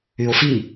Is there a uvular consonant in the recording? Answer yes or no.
no